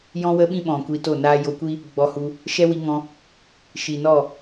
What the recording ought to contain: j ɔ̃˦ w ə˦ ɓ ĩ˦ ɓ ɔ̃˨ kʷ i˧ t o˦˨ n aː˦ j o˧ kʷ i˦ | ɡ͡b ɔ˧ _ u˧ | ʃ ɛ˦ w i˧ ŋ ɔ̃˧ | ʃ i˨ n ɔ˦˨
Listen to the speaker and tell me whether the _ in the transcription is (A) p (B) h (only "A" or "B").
B